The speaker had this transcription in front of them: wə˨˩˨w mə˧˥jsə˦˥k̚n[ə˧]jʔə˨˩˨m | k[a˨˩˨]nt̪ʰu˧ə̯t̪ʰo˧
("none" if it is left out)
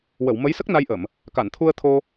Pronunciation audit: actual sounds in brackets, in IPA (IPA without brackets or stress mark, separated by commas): a˧, a˨˩˨